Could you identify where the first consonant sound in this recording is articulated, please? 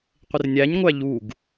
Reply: uvular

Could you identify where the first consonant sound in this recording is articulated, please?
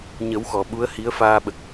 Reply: palatal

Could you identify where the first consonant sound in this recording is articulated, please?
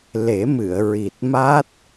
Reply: alveolar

